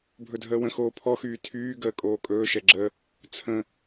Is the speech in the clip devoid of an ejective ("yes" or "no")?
no